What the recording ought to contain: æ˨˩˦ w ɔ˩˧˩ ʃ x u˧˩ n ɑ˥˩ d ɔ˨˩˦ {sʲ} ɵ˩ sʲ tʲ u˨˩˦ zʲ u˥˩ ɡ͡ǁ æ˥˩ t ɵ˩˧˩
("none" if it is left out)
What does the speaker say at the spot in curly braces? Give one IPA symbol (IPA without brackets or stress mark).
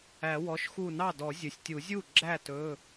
zʲ